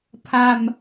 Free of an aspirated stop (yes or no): no